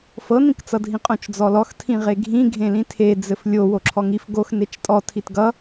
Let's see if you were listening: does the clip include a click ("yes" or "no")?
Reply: yes